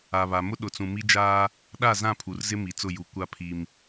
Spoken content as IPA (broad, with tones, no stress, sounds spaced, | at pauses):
a˨ β a˨ m ʊ˦ ɗ ʊ˨ t͡s ũ˨ m i˦ d͡ʒ aː˦ | ɗ a˦˨ z ã˦˨ pʰ u˨ r z ɪ˦ m i˨ t͡s ʊ˦˨ j u˨ kʷ a˦ pʰ i˦ m